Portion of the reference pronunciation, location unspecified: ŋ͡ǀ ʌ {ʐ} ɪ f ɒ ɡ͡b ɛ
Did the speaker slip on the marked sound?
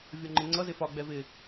yes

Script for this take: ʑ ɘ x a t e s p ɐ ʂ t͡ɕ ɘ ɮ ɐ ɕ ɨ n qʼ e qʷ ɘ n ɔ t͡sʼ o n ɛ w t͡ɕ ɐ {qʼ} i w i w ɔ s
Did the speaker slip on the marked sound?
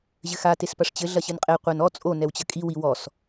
yes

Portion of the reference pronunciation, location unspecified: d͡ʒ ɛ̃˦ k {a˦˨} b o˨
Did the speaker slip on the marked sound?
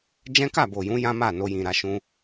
no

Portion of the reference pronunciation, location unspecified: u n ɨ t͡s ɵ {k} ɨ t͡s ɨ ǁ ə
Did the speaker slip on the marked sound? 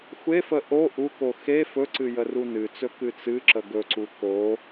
no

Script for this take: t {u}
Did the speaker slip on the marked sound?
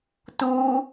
no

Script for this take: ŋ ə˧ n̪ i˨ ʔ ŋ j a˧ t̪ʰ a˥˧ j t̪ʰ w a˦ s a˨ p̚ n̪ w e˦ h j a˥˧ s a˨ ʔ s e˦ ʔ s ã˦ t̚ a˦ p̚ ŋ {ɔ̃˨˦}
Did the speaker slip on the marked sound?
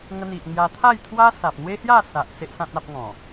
yes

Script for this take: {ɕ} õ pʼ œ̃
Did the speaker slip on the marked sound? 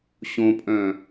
no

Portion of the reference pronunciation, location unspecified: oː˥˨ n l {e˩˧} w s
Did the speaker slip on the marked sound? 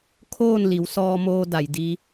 yes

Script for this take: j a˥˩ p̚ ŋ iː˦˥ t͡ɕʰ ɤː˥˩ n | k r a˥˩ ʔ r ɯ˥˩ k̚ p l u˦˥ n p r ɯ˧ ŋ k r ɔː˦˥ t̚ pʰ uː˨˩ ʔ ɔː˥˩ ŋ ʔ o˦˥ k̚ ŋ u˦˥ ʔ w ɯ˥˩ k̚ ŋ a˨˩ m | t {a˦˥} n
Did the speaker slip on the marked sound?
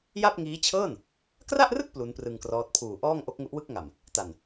yes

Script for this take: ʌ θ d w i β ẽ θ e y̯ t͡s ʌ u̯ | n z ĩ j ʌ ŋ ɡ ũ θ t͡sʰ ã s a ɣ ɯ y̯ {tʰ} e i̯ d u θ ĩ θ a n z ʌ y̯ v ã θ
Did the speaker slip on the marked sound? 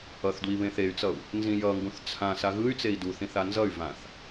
yes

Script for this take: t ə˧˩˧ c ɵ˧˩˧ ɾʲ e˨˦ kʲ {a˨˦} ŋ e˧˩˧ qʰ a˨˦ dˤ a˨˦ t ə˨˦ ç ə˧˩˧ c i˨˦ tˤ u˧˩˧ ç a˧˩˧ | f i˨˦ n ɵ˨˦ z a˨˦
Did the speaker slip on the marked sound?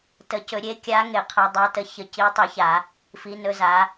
no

